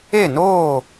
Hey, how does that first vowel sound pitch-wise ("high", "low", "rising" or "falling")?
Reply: falling